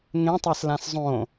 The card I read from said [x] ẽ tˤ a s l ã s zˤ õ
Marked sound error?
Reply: yes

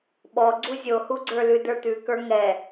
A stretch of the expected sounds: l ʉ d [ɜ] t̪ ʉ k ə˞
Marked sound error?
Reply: yes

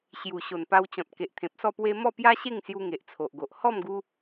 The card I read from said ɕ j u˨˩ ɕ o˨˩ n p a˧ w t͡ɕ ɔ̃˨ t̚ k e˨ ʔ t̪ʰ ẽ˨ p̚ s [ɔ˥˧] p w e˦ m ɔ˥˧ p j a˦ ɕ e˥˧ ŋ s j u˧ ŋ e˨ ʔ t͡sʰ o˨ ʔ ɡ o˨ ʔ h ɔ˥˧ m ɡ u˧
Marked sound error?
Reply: no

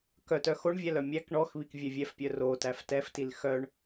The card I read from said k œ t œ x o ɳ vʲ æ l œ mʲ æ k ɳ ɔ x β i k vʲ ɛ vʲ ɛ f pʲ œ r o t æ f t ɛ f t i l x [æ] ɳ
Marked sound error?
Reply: yes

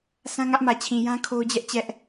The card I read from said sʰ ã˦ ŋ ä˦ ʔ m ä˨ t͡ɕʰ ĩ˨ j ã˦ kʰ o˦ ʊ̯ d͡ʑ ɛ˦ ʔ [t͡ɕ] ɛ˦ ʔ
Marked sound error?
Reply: no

